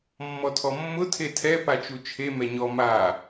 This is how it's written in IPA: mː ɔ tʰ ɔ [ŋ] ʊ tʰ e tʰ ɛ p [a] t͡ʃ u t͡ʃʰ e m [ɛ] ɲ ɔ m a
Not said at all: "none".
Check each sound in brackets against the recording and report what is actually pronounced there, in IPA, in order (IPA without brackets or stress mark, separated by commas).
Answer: mː, a, ɛ